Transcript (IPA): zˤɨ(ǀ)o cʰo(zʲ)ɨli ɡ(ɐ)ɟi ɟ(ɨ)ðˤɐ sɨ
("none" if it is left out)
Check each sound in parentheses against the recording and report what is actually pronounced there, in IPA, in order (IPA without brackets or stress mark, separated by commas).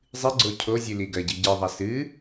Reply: ɡ͡ǀ, zʲ, ɐ, ɨ